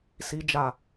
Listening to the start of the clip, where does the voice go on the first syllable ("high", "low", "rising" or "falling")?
low